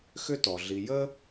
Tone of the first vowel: high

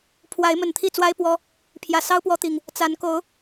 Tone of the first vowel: rising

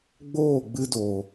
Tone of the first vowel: falling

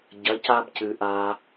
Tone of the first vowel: rising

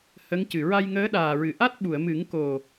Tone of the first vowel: rising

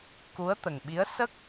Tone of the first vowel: rising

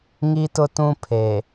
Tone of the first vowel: high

